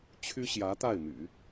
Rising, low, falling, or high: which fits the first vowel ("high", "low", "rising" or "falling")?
high